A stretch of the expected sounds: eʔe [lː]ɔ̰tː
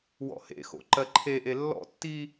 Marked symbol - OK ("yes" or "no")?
yes